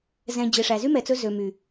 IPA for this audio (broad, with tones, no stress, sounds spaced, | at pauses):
z ɛ̃˨ d͡ʑ e˨ ʂ æ˨ z y˦ m ɛ˨ t͡s ɵ˧ z ø˨ m y˨